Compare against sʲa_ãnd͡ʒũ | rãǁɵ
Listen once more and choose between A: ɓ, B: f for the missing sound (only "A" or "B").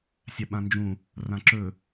A